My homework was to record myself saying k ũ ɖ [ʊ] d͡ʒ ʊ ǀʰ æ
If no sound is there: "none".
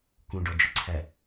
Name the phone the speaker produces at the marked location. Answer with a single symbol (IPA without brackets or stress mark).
ɔ